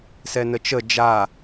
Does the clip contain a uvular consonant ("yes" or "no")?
no